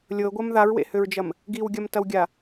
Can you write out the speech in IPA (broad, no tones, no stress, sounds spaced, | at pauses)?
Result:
lʲ ɤ ɡʷ ɐ m ð a ɹ w ḛ h ø ɹ d͡ʒ ɐ m | ɡ i w ɡʲ ɐ m t ɐ w ɡʲ a